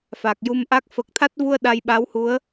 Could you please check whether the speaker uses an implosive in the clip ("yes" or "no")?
yes